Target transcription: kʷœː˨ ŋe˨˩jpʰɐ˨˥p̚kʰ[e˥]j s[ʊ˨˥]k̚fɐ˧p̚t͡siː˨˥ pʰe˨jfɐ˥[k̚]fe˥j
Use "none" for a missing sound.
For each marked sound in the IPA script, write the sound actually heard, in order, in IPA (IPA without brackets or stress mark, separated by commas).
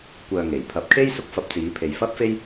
e˥, ʊ˥, p̚